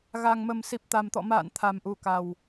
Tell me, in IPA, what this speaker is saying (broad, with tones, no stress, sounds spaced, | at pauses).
ɣ a˨˩ ŋ m ə˨˩ m s i˨˩ p̚ t̪ a˨˩ m t̪ ɔ̰˧˨ m a̰ː˧˨ n t̪ʰ a˨˩ m ʔ u˨˩ k a˨˩ w